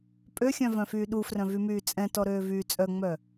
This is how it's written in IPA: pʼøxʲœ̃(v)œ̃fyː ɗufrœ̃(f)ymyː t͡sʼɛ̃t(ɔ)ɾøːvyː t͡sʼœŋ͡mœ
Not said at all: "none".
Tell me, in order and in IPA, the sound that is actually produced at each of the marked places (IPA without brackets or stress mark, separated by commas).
v, v, ɔ